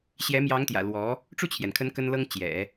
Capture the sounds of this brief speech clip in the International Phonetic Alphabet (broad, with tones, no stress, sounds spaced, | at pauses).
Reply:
ɕ j ɛ˧˥ m j ɑ˧˥ ŋ t̪ j ä̰˨˩ l w ɔ˧˥ | ʈ͡ʂ u˥˩ t͡ɕʰ j ɛ˩ n kʰ ə˧˥ n k ə˥ n l ɤ˥ ŋ t͡ɕ j ɛ̰˨˩˦